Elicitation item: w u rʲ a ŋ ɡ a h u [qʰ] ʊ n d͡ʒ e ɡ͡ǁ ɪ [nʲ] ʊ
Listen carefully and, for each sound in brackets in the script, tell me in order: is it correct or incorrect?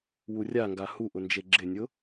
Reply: incorrect, correct

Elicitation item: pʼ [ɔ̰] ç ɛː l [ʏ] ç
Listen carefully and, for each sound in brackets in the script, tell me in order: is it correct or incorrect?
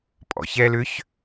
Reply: correct, correct

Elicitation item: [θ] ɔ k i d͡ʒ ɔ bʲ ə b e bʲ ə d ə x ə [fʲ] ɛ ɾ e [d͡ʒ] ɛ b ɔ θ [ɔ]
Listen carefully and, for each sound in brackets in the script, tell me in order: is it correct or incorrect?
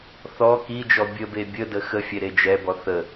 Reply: correct, correct, correct, incorrect

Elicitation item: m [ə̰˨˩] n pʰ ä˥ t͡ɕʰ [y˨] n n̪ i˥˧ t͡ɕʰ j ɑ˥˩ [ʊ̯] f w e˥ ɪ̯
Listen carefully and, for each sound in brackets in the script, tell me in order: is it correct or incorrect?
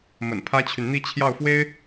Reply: correct, correct, correct

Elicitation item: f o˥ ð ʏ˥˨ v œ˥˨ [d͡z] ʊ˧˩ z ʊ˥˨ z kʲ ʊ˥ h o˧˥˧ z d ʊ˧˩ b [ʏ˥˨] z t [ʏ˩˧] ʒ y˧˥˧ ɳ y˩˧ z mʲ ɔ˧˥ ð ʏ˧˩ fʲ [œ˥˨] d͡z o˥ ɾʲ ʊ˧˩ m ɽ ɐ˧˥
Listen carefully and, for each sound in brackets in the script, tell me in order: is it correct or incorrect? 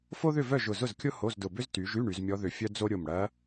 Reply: incorrect, incorrect, incorrect, incorrect

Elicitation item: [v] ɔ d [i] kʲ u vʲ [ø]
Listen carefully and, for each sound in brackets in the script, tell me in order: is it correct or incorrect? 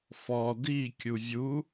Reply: incorrect, correct, incorrect

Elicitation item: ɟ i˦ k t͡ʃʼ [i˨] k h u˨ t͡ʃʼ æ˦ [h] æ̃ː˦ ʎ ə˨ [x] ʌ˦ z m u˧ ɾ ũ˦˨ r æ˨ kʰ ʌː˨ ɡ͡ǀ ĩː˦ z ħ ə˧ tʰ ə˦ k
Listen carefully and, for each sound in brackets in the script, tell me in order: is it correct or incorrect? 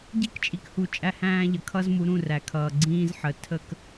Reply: correct, correct, incorrect

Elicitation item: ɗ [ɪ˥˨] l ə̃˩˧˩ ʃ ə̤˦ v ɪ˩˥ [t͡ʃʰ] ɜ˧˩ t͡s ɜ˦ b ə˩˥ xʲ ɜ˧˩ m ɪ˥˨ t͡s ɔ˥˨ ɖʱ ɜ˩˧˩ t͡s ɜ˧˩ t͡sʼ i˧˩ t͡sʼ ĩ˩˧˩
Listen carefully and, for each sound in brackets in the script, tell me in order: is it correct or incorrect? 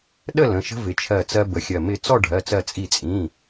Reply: incorrect, correct

